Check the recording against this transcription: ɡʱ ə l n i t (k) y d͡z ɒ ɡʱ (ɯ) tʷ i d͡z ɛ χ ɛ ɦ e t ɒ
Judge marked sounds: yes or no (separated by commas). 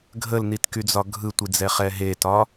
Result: yes, yes